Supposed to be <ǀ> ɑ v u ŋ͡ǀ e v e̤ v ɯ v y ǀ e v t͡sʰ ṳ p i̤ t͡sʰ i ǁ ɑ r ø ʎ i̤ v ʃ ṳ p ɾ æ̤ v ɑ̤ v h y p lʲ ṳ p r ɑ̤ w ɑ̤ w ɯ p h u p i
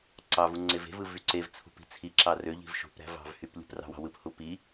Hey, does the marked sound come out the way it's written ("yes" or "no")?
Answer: yes